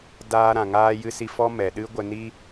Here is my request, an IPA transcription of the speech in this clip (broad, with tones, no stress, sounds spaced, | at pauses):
d aː˦ ɾ ã˨ ŋ aː˦ j ɨ˦ s i˦ f ɔ˧ m ɛ˨ ɗ ɨ˦ ɡʷ ə˧ n i˦